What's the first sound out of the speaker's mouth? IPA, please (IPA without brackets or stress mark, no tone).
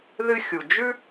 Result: ð